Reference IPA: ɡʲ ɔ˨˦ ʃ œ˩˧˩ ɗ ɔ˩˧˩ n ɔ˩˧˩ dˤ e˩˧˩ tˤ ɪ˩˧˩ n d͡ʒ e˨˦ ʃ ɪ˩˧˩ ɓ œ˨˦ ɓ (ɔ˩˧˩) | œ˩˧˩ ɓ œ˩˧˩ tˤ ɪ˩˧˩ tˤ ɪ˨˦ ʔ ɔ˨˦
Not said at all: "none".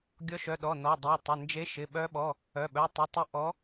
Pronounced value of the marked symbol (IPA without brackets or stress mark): ɔ˩˧˩